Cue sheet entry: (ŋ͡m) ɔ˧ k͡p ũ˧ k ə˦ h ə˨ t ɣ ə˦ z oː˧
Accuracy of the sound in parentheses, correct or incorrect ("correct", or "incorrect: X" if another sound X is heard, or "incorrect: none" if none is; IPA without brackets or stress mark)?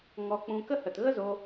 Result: incorrect: ŋ